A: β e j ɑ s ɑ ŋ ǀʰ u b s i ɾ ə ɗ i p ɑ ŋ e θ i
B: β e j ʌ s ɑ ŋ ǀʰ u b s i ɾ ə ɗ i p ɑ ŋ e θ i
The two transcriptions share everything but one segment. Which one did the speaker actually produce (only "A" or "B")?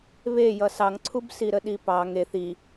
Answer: B